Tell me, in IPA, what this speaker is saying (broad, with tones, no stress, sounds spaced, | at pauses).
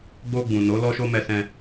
ɡ͡b o˧ ɡ͡b ũ˨ n o˨˦ l ɔ˦ ʃ o˦ m ɛ˧ s ɛ̃˧